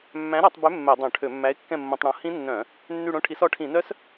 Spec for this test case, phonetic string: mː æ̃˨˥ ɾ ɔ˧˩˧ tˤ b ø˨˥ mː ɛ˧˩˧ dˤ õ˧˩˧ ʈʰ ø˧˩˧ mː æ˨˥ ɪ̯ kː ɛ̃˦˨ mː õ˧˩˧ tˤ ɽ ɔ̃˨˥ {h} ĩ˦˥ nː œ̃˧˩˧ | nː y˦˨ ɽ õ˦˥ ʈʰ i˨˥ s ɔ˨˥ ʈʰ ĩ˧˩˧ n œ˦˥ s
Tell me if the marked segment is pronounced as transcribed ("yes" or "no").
yes